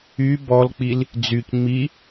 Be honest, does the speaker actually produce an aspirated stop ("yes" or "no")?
no